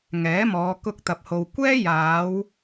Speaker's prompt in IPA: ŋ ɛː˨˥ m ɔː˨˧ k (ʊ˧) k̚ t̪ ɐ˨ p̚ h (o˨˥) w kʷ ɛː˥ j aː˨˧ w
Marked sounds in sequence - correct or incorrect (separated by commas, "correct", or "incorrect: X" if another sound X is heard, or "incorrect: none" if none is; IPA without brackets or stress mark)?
correct, incorrect: o˨